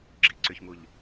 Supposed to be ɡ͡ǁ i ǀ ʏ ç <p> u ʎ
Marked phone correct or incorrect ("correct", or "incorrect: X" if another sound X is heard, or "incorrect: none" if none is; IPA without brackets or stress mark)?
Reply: incorrect: m